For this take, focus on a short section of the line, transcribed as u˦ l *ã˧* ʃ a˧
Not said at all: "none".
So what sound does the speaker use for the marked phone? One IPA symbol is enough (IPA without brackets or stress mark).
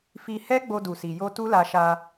a˧